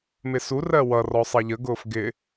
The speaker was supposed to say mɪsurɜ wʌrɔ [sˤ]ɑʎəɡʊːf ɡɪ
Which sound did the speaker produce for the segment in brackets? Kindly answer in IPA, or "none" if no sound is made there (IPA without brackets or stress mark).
sˤ